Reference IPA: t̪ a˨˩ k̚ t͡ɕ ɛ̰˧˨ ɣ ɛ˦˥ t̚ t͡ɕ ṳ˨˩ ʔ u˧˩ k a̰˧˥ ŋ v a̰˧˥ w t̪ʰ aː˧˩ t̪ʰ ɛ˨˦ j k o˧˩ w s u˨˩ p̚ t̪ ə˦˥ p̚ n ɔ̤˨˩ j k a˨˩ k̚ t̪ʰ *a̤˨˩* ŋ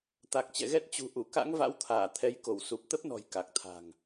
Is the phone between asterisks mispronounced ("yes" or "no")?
no